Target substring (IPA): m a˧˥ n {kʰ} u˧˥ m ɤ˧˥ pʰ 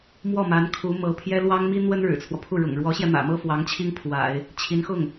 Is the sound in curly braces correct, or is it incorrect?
correct